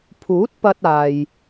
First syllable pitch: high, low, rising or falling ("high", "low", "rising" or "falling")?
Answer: rising